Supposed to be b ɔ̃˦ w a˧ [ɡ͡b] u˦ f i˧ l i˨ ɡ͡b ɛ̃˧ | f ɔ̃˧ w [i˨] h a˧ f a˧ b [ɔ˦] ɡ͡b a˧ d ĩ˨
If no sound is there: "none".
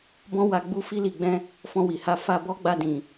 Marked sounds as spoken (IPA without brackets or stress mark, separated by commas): ɡ͡b, i˨, ɔ˦